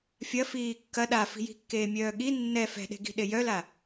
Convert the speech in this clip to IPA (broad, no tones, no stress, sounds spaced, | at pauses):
fʲ ɐ f iː kː ɐ ɗ a f i̤ j i̤ kː eː mʲ œː ɠ i nː ɛ f ɛ̤ ɗ e̤ ɡ i̤ ɗ e j œ l a